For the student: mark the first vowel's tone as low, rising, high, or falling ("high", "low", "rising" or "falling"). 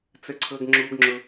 high